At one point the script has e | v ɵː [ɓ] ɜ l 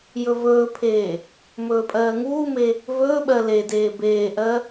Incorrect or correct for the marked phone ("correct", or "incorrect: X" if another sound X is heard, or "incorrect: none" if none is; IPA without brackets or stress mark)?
correct